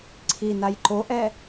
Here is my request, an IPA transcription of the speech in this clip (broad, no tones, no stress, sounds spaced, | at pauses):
ǀʰ i n a j ǃ o ʔ ɛ